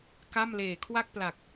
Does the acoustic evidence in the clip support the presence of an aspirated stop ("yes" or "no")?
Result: yes